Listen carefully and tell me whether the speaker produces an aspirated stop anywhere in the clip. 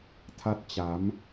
yes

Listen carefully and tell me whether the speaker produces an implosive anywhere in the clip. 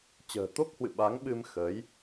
yes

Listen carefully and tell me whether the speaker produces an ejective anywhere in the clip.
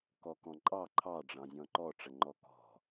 yes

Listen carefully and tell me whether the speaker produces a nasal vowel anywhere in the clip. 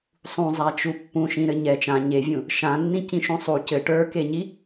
yes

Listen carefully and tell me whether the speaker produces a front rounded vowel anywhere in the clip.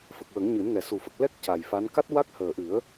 no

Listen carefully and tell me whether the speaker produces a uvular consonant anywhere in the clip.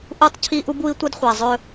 yes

